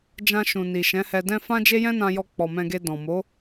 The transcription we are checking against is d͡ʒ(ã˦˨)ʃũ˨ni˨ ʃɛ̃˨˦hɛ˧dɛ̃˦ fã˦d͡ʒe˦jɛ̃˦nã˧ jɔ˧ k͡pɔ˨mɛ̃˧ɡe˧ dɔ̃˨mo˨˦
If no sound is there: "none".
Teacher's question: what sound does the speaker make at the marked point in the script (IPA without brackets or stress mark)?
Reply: ã˧